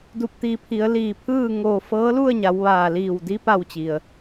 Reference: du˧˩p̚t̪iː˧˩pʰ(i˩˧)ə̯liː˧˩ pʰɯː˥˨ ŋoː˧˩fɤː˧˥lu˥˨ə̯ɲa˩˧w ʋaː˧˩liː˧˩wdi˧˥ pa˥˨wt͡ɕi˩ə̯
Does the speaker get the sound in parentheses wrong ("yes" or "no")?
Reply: no